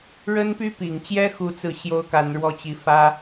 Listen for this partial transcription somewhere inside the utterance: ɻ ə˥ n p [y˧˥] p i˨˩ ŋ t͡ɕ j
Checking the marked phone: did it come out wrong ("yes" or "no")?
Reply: yes